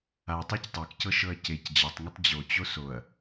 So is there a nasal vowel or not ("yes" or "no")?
no